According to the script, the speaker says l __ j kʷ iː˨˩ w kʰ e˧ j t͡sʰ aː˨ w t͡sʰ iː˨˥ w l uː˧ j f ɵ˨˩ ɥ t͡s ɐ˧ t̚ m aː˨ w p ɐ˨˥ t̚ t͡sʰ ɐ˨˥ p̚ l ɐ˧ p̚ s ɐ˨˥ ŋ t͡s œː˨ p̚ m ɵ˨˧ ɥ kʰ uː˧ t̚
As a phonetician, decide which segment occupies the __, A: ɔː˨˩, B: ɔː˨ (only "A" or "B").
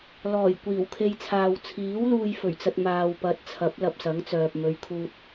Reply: A